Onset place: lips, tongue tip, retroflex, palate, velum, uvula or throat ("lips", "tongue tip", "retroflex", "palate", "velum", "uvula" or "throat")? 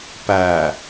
lips